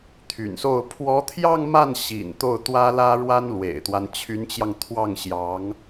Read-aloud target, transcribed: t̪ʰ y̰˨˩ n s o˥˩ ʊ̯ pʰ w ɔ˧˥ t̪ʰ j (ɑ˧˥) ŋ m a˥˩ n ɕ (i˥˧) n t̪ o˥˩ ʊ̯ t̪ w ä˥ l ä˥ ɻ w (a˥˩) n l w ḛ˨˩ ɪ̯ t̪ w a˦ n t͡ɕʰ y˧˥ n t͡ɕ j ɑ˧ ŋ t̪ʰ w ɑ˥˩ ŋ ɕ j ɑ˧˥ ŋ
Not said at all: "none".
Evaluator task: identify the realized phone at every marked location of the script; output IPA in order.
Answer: ɑ˥˧, ḭ˨˩, a˥

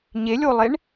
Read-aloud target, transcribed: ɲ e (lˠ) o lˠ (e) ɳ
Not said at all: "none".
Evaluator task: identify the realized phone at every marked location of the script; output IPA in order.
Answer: lʲ, e

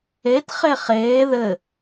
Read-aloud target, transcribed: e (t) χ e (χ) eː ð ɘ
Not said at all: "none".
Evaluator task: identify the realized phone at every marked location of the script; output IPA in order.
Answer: t, χ

